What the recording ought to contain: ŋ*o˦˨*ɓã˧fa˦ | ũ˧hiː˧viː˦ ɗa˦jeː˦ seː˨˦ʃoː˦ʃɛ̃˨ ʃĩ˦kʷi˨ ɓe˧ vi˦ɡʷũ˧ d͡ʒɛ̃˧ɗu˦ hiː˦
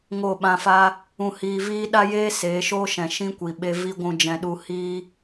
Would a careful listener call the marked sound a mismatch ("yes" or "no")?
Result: no